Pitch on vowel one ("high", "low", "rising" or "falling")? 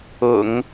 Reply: low